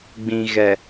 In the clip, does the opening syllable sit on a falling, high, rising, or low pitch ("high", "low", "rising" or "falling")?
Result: low